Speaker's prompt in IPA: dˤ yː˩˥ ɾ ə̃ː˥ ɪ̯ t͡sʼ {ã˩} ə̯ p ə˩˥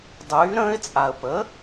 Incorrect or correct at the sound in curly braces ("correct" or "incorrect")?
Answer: incorrect